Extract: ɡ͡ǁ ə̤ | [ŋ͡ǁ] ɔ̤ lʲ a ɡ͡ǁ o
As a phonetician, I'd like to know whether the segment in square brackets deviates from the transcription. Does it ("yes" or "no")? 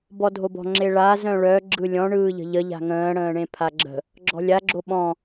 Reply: yes